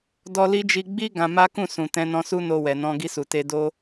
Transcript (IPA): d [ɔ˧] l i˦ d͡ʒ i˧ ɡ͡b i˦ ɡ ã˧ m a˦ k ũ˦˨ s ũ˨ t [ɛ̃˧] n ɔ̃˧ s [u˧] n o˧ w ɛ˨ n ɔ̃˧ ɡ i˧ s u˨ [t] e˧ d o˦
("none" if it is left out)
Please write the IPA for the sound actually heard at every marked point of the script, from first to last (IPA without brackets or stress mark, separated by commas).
ɔ˧, ɛ̃˧, u˦, t